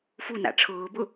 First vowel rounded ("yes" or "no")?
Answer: yes